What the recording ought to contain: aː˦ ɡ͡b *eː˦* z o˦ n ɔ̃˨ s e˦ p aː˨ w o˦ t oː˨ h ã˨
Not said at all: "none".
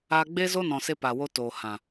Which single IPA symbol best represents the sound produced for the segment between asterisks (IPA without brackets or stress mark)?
eː˦